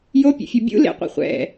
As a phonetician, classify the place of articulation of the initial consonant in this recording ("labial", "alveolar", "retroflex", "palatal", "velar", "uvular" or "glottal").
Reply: palatal